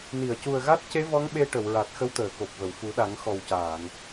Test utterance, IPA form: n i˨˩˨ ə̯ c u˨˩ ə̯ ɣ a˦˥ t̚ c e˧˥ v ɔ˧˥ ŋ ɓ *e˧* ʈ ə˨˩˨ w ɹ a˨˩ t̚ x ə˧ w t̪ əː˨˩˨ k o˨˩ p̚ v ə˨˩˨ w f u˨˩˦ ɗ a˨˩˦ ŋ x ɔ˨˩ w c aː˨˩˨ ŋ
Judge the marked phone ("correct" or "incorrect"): correct